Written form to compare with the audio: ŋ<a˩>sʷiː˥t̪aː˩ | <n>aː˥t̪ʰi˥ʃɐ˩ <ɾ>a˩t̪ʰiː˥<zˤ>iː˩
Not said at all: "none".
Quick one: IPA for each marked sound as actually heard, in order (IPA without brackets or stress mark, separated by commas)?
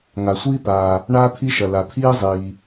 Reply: a˩, ɳ, l, zˤ